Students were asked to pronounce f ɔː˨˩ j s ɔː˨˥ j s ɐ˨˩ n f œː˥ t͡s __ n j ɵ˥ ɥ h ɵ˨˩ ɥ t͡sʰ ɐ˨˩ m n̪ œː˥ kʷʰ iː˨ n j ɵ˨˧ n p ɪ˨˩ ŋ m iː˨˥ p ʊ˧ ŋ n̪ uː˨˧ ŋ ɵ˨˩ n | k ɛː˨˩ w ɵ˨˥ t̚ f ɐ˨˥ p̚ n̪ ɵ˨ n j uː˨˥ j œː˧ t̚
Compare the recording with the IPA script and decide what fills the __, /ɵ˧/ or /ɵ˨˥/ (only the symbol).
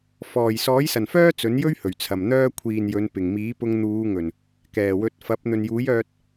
ɵ˨˥